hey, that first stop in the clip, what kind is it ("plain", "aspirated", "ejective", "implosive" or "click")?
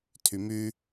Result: aspirated